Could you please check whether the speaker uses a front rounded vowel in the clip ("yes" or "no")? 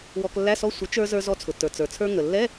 no